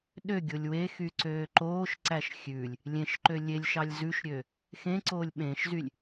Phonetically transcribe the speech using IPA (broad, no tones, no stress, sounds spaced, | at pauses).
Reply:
ɗ ø ɡʲ o lʲ w e x y ǀ øː ǃ oː ʃ ǀ æ ʃ xʲ ʉ lʲ | lʲ ẽ ʃ ǃ ø lʲ e lʲ ʃ ɑ lʲ z ʉ ʃ ɾʲ ø | x ẽ ǀ oː lʲ ɓ ẽ ʃ z y lʲ